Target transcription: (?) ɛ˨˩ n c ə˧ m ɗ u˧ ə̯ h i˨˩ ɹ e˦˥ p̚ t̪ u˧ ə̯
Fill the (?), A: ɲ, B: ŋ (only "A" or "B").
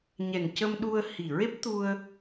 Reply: A